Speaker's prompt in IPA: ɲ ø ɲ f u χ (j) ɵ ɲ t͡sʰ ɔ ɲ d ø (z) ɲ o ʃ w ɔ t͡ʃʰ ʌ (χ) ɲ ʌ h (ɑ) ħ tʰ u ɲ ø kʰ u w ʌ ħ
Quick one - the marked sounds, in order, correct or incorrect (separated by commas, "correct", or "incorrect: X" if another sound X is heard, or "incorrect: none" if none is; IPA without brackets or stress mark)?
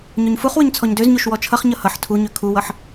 incorrect: w, correct, correct, incorrect: ʌ